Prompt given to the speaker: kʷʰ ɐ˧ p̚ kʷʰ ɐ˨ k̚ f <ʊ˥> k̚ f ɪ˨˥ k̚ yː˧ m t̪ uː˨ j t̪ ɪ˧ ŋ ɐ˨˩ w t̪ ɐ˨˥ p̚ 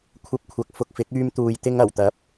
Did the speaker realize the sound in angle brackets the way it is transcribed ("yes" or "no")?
no